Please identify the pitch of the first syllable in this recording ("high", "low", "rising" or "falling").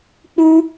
high